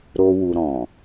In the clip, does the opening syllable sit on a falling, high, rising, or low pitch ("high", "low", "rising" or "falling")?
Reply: high